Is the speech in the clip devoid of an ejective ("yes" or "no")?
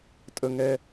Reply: no